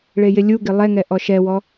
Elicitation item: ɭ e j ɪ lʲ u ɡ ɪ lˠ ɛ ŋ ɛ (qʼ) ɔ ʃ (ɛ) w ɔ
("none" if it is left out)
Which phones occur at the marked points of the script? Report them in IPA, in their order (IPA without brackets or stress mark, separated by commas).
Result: ʔ, ɛ